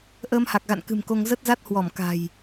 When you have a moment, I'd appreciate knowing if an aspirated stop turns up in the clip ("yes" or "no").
no